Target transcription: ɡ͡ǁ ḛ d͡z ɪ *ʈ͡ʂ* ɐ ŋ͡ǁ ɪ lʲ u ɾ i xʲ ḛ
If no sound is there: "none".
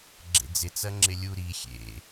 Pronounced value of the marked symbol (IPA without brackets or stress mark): t͡s